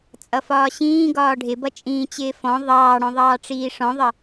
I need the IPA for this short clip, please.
t͡sʼ ʌ f ɒː ɕ ĩː ɡ ɒː ɖʱ ɪ b ʌ t͡ʃʼ ĩː t͡ɕ ɪː f ɔ̃ ðˤ ɑː ɽ ɔ̃ ðˤ ɑː ʈ͡ʂ iː ʂ ɔ̃ ðˤ ʌ

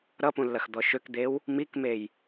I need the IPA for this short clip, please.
ɾ ʌ p ũ lː ɐ x d̪ ɔ ʃ ø k d̪ e w | m i k m e j

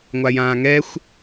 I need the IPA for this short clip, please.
ŋʷ a j ãː ŋ ɛ xʷ

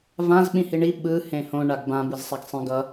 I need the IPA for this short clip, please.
v ã z ɓ ĩ h i ɳ i ɓ ɯ h ẽ h õ ɳ a ɡ b ã b ɯ z sˤ a ɡ sˤ ĩ ɡ ʌ

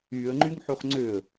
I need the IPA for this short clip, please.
y ə̯ ŋ͡ǃ y ŋ ħ u χ ŋ͡ǀ ø ə̯

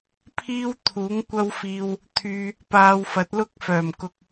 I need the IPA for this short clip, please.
pʰ iː˥ w t̪ʰ uː˨˥ ŋ kʷ ɐ˥ w f iː˧ w | t̪ʰ yː˧ | p aː˧ w f ɐ˨˥ t̚ l ʊ˥ k̚ f œː˨˩ m k ʊ˧ k̚

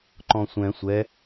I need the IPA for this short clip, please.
ǃ ɔ̃ sʷ ɛ̃ sʷ ɛ

